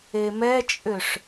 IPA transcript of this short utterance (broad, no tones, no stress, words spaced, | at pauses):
emɛt͡ʃʼʏʂ